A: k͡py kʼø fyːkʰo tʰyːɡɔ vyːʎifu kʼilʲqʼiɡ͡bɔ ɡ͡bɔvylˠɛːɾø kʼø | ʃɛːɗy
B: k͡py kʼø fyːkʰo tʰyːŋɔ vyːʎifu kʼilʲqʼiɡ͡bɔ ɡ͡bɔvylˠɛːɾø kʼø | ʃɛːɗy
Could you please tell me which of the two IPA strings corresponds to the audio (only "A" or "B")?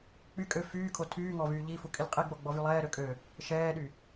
B